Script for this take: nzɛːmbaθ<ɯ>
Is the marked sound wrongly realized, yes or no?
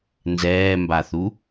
yes